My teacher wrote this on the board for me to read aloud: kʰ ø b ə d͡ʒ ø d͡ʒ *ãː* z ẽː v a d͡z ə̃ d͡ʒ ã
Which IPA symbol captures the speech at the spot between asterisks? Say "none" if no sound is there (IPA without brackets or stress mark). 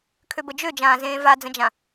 ãː